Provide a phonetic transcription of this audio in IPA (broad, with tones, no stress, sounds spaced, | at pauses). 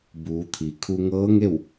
b uː˩˧ t̪ʰ i˩ kʰ u˧ ŋ ɤː˧˥ ŋ e˥˨ w